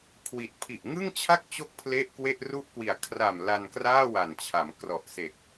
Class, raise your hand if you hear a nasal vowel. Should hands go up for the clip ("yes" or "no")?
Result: no